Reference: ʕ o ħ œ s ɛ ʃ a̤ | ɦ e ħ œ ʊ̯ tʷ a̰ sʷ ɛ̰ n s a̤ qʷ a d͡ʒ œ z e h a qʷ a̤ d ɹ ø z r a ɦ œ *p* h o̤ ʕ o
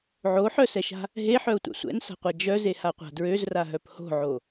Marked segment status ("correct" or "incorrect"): correct